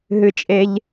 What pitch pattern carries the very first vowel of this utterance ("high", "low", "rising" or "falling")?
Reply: low